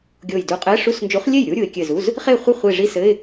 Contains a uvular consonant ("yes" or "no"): yes